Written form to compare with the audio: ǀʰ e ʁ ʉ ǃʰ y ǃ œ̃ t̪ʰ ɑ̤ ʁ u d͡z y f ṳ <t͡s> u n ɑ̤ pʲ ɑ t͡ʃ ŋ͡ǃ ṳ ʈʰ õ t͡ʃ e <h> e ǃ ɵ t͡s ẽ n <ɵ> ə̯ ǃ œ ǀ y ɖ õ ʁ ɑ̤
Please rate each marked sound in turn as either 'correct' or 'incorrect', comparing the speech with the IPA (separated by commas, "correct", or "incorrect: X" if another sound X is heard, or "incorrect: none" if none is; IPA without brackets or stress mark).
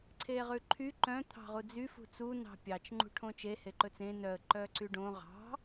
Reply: correct, correct, incorrect: œ